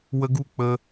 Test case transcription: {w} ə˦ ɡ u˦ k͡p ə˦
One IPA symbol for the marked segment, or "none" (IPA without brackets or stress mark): w